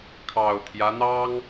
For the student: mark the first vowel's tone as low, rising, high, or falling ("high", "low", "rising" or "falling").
low